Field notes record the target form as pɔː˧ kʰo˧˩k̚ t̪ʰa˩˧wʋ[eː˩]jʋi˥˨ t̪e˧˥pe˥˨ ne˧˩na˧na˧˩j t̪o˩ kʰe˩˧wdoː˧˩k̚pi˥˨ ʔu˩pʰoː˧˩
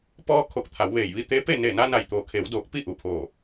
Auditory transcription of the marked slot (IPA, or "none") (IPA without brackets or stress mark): eː˧˩